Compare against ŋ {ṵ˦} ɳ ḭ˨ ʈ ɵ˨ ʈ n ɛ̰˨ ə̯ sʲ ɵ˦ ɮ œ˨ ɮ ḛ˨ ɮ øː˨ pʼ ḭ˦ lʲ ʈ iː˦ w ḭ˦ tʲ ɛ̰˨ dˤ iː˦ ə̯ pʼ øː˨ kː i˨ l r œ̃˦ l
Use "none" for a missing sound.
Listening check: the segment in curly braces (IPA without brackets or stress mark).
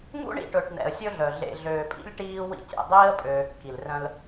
ṵ˦